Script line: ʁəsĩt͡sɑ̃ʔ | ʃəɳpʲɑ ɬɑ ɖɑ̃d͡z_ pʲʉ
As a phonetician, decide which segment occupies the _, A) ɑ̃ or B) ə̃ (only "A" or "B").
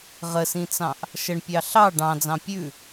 A